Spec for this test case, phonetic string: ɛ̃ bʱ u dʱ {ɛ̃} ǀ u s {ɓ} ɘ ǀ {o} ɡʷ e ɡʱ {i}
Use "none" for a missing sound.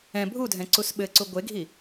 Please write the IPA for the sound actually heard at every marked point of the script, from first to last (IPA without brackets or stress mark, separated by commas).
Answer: ɛ̃, ɓ, u, i